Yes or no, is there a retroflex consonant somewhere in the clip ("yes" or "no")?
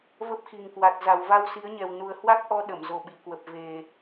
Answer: no